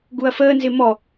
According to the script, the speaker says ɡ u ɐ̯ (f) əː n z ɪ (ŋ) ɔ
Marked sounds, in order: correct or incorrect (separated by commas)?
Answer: correct, incorrect